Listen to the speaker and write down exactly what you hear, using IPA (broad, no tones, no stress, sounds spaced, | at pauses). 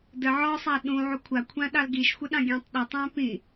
d ə ʕ ɔ sˤ a ɗ ũ ʕ u kʷʰ a kʷʰ ã ɗ ɑ l ɡ i ʃ xʷ ə ɗ ɑ̃ ɡʲ ɑ̃ tˤ ɗ ə tˤ æ̃ p ĩ